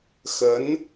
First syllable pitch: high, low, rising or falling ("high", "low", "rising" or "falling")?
rising